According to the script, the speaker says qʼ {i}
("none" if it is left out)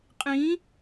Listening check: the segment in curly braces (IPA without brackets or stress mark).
ĩ